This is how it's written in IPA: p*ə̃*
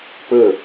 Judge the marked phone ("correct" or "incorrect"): incorrect